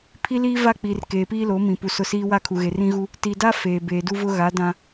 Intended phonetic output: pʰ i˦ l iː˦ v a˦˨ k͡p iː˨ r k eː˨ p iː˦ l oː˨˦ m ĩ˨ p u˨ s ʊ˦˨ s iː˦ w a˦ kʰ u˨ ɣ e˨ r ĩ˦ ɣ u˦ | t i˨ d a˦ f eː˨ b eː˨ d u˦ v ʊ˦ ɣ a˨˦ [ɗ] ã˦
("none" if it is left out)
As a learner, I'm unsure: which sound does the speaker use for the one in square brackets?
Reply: d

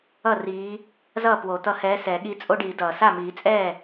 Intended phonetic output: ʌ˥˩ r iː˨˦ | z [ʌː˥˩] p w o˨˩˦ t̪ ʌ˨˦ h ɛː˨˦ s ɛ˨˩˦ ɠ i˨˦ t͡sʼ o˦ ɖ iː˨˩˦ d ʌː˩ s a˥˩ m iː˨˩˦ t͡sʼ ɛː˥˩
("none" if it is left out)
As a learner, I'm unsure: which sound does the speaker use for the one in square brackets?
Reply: ʌː˥˩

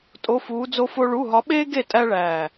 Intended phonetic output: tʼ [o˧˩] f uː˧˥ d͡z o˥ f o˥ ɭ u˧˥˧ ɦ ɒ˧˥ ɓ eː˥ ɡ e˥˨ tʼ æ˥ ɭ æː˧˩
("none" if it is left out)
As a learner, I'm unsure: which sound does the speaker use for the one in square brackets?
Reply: o˧˥˧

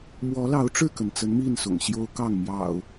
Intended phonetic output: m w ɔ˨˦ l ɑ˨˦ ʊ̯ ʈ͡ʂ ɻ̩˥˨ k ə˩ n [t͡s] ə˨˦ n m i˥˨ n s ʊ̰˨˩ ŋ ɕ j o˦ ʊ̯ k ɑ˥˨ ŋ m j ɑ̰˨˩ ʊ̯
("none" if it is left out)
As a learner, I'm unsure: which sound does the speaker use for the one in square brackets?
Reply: t͡s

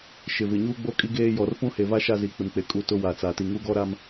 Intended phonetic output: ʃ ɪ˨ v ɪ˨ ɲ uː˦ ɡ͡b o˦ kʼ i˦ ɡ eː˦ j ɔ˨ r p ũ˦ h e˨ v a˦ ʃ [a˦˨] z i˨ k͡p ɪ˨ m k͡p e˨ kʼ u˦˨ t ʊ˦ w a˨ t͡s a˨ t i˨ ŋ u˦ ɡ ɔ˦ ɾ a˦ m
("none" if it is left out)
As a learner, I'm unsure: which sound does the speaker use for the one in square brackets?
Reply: a˦˨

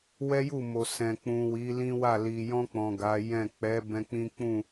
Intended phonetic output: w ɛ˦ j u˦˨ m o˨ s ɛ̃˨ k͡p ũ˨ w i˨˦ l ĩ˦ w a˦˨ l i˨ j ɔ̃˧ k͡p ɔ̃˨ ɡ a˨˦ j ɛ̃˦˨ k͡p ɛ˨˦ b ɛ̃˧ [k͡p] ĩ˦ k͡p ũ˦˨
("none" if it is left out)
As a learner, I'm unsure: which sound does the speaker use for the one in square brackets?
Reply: k͡p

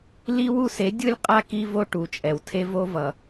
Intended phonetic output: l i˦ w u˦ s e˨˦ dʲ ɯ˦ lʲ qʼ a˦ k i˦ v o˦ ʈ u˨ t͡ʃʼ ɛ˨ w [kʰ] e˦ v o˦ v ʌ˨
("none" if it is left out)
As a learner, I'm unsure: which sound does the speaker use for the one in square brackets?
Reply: tʰ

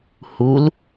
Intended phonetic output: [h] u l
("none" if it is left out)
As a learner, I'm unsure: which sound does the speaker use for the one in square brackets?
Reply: h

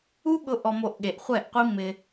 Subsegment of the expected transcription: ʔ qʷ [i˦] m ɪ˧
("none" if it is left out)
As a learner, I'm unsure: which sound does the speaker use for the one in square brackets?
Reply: i˦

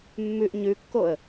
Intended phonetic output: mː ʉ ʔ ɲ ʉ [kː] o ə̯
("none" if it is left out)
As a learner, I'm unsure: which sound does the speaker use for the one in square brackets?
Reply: kː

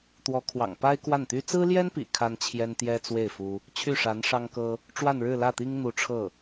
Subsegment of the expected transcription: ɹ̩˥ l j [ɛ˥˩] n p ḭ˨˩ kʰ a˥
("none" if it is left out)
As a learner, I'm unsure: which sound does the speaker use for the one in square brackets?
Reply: ɛ˥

